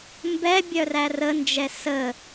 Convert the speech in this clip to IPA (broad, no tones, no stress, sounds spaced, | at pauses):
m b ɛ bʲ œ r æ r ə n d͡ʒ ɛ s ə